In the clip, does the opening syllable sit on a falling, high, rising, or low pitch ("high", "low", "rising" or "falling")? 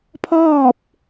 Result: falling